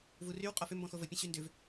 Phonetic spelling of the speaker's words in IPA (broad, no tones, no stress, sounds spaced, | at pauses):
v u r y w qʼ ɔ f ʏ m b ɔ̃ x o v ə pʲ ə̃ ɕ y n d ʏ v